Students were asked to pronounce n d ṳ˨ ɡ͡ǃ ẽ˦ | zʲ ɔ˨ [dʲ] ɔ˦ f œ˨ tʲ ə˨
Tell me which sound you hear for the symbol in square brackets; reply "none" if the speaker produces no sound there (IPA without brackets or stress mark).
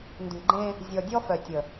dʲ